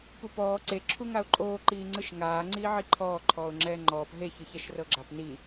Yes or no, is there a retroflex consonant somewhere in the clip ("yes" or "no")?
no